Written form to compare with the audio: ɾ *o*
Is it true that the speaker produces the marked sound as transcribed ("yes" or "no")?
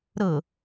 no